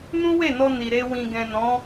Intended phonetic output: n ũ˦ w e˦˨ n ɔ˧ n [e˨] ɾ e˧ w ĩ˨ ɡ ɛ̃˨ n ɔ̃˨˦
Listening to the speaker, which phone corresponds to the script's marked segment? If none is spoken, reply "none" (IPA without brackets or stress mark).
i˨